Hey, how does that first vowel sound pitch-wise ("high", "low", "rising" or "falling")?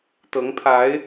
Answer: rising